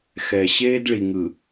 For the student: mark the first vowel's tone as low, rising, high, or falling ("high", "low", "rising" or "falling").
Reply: low